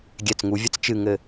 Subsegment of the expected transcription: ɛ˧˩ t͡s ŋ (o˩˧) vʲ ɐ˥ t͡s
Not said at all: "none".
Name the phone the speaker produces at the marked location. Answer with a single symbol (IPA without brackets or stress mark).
u˩˧